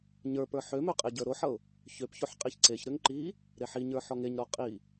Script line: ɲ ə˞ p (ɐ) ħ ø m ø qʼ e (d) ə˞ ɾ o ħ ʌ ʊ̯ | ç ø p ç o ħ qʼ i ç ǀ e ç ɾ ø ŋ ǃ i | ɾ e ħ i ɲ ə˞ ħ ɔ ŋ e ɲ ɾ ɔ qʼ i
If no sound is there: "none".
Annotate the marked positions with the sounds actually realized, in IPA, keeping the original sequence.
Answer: ə˞, ɟ

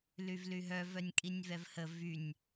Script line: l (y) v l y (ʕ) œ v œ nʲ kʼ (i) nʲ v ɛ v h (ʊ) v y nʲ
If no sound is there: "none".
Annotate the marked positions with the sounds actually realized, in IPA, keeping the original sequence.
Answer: y, ɦ, i, ə

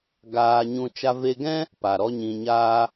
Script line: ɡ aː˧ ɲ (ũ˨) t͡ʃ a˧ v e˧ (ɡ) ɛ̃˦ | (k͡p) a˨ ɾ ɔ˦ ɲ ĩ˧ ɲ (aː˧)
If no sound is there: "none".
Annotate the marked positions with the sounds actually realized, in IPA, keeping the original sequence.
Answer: ũ˧, ɡ, p, aː˦

